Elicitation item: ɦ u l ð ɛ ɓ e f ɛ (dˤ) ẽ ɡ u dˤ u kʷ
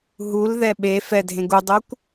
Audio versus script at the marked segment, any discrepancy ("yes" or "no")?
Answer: yes